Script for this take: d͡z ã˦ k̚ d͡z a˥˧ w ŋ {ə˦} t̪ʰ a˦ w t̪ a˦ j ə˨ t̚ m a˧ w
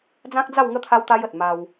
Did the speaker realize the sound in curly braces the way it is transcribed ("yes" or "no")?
yes